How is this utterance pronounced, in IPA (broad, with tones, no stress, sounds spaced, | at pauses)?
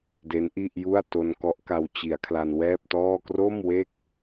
d e˦˥ n ʔ i˥˩ ʔ j u˥˩ a̯ t o˧ n k ɔ˦˥ ʔ k a˧ w t͡ɕ i˩˦ a̯ kʰ l a˧ n w ɛː˥˩ p̚ t ɔː˥˩ k r o˥˩ m w e˥˩ k̚